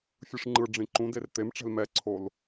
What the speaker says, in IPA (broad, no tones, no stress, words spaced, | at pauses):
fʲɯʂŋ͡ǃɯɖ͡ʐĩ ǃũder t̪emʈ͡ʂɛ̤l mɛǀʰol